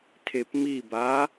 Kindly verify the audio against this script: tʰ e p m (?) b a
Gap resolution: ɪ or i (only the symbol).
i